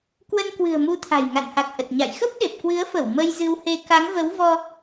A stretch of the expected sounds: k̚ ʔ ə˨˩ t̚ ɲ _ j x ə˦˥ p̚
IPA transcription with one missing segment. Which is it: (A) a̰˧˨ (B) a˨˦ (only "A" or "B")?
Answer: A